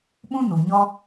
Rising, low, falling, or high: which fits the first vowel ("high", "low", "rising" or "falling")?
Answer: high